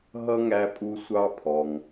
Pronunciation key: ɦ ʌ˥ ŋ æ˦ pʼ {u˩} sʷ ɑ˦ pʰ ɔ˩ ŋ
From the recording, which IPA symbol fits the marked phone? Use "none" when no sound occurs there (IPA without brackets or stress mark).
u˦